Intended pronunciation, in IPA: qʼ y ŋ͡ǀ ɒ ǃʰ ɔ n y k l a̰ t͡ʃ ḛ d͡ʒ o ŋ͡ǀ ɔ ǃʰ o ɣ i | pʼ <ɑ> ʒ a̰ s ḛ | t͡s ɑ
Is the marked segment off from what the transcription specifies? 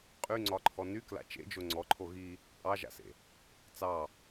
no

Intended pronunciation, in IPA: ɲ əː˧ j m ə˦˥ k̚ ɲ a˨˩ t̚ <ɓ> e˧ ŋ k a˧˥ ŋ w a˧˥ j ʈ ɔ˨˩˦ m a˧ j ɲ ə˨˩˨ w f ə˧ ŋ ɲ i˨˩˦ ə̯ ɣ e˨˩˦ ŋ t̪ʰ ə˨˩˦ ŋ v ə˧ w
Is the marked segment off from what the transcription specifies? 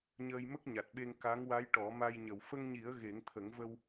no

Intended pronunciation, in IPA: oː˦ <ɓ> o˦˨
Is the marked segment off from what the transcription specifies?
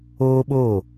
no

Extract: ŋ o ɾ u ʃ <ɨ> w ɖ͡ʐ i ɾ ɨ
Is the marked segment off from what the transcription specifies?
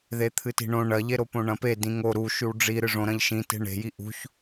yes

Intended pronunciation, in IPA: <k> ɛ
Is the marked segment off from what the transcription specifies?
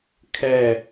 yes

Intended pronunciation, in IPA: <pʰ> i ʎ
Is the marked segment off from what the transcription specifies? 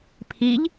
no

